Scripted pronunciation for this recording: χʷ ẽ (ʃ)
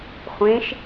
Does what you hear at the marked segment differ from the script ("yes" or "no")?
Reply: no